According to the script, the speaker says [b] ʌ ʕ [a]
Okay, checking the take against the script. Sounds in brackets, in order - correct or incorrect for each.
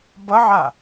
correct, correct

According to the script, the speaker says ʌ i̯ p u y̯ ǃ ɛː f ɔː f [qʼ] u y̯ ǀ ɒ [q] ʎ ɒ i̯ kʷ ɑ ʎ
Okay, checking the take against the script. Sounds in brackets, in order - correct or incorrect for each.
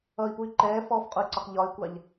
correct, correct

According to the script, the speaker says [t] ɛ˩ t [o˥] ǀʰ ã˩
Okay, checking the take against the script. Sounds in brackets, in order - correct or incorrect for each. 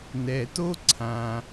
incorrect: n, correct

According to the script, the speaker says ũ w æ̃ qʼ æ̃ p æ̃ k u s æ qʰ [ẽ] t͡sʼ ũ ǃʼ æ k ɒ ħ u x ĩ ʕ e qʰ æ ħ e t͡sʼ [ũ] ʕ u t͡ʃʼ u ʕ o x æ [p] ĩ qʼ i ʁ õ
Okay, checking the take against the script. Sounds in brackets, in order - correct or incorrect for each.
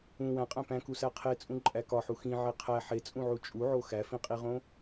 incorrect: e, correct, incorrect: f

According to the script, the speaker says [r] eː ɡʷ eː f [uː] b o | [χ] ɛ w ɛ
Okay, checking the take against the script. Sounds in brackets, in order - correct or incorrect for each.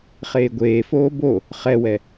incorrect: χ, incorrect: oː, correct

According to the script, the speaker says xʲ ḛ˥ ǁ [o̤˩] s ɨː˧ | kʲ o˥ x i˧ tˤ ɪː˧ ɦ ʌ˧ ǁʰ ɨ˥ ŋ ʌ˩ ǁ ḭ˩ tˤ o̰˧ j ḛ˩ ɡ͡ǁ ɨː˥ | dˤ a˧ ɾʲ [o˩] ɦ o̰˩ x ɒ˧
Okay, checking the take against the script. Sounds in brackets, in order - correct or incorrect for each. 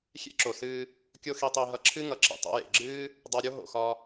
incorrect: o˩, incorrect: o˥

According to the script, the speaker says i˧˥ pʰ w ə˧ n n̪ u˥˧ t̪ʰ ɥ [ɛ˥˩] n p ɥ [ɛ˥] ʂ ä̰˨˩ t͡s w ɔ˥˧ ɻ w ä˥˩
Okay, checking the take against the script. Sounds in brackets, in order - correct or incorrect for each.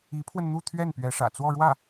correct, incorrect: ɛ˧˥

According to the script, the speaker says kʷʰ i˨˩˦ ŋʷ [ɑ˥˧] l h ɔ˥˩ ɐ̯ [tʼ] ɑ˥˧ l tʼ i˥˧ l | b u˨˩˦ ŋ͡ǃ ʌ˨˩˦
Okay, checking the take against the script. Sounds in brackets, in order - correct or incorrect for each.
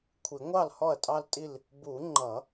incorrect: ɑ˥˩, correct

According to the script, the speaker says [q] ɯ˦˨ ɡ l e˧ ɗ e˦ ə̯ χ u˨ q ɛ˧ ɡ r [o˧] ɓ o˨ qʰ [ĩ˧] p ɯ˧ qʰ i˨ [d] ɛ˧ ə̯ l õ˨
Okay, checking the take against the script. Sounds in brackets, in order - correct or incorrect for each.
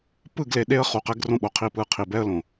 incorrect: p, incorrect: õ˧, incorrect: i˧, incorrect: b

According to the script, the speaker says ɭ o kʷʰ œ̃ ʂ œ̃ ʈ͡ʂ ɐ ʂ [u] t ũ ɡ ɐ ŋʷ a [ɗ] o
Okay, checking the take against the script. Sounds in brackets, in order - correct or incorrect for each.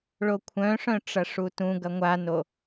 correct, incorrect: n

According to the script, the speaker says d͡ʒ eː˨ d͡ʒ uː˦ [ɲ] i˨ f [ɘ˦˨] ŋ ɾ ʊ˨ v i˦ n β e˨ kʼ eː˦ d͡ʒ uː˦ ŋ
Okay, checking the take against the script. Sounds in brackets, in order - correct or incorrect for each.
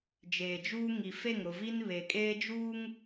incorrect: ŋ, incorrect: e˦˨

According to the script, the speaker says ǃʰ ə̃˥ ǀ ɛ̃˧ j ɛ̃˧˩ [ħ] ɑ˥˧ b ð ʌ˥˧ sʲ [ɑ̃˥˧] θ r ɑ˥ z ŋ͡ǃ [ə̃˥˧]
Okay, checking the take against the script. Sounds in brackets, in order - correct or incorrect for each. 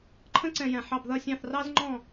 correct, correct, incorrect: ɔ̃˥˧

